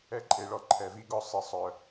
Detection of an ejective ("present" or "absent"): present